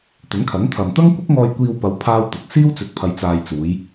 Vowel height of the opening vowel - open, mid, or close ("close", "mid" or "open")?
open